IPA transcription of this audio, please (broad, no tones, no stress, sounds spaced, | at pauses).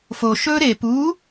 f o ʃ ɵ ɾ e p u